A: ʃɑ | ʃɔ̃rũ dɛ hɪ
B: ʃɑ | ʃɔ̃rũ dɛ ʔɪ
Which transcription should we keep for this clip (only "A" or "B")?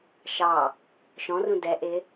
B